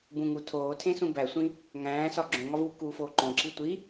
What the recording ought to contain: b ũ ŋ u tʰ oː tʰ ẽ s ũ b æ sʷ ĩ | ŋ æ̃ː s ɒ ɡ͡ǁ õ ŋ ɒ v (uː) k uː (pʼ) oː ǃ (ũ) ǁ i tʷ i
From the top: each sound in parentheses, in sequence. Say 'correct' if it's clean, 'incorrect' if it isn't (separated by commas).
correct, incorrect, incorrect